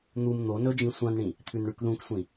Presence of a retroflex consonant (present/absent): present